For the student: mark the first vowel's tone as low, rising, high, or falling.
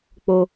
low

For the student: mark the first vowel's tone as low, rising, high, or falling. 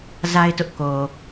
high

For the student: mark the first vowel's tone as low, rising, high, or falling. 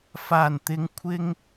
low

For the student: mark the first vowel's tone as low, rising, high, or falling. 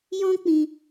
high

